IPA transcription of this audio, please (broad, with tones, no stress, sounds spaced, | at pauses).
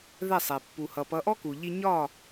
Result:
ð ɛ˥˩ sˤ ɛ˩ pː u˩ h ʌ˩ p ʌ˩˥ ʔ ɔ˥ k u˩ ʎ i˧ ɲ ɒ˥˩